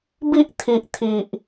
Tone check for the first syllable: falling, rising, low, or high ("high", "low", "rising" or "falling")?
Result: high